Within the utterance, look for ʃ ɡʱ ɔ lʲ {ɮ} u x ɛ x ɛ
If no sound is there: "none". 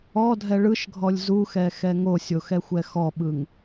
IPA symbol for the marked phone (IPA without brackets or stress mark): z